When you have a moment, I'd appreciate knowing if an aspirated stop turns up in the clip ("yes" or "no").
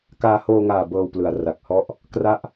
no